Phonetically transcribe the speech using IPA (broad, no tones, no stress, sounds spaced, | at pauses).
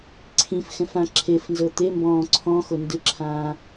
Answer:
ǀʰ ĩ f x ɛ̃ f ã ǁʰ e f n z ɤ t̪ e m b ɔ̃ː ǀʰ ɔ̃ x o n d ɯ ǁʰ ãː